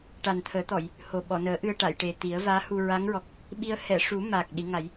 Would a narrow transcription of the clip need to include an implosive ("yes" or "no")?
yes